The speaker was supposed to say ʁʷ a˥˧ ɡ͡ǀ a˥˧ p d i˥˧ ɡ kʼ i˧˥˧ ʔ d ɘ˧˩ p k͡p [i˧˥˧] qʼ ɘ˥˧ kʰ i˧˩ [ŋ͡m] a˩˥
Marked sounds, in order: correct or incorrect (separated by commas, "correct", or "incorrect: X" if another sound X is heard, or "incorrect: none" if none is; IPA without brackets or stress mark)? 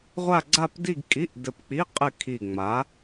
correct, correct